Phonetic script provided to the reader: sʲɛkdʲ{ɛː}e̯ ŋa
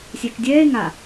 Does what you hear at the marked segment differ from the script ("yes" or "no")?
no